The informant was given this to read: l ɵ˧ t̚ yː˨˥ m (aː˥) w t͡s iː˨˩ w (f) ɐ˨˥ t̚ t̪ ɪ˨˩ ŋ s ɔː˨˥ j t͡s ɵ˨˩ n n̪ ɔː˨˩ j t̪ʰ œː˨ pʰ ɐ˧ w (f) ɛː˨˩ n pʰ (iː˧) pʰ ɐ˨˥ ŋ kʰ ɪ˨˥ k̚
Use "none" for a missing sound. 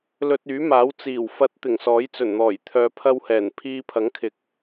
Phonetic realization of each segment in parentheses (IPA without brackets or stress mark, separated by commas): aː˨˥, f, h, iː˧